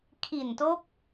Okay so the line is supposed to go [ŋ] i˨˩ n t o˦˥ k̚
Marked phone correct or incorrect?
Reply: incorrect